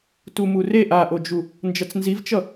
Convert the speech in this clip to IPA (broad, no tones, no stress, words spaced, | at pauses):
tumureʔ aʔod͡ʒu | nd͡ʒʌt͡snzivt͡ʃʌ